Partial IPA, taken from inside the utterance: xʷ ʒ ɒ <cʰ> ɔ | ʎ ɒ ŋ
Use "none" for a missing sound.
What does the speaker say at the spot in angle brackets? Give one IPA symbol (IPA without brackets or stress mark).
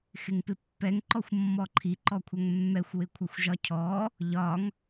cʰ